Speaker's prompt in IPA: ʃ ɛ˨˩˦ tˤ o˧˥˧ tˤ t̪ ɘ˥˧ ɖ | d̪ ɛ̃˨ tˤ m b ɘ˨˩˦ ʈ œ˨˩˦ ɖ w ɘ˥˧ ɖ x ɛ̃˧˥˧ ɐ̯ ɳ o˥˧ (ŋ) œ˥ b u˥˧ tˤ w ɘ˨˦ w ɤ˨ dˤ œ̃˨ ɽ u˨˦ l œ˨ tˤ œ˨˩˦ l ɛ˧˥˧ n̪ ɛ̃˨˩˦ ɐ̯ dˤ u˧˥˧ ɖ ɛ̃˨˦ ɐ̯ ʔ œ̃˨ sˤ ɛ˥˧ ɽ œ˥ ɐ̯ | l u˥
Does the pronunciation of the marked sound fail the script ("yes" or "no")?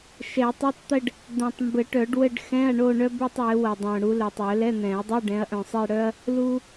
yes